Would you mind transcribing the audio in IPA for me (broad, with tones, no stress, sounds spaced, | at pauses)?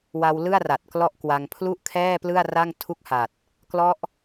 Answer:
w a˧ w l ɯ˥˩ a̯ r a˨˩ t̚ k l ɔ˥˩ ʔ k w a˧ ŋ pʰ l u˥˩ ʔ kʰ ɛː˥˩ p l ɯ˥˩ a̯ r a˥˩ ŋ tʰ u˥˩ k̚ h a˨˩ t̚ | k l ɔ˦˥ ʔ